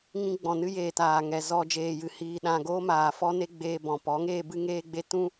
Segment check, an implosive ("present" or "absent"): present